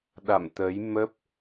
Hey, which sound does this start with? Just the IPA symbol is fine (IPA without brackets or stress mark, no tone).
ɗ